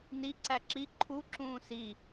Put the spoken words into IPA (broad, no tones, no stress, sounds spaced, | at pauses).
n i ǀ æ ǁ i ǃʰ u ǁ ũː s i